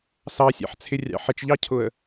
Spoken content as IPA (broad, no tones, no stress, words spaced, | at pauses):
sɑsʲɑ̰ħt͡sʰɪrʲɑ̰ ħɪt͡ʃʎɑcʰʊə̯